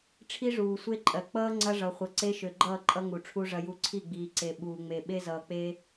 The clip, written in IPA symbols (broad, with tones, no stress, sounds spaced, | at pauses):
ʈ͡ʂʰ i˦ ʐ uː˨ sʷ e˦ ǃʼ ɜ˨ k͡p ʌː˦ ŋ͡ǀ ɐ˦ ʐ ʌ˨ χʷ ʌ˨ ǀ e˦ ʃ ø˨ ɡ͡ǃ ʌː˦˨ ǃʼ ʌ˦ ŋ u˨ ʈ͡ʂʰ u˦ ʐ ɐ˦ j u˦ ǀʰ i˦˨ ɡ͡b iː˨ ǀ e˨ ɓ uː˨ ŋ͡m e˨ ɓ e˦ z ʌː˨ k͡p e˦